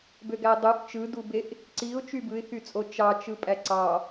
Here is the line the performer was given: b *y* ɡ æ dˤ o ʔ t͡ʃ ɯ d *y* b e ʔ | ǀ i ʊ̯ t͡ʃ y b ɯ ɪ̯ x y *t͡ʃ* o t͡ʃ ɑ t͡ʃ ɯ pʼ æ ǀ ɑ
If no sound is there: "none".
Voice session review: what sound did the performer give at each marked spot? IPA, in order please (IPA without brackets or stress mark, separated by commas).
ø, u, t͡sʼ